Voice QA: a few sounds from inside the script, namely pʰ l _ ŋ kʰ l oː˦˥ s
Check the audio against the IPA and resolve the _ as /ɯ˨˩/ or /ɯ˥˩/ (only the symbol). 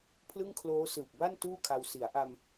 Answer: ɯ˥˩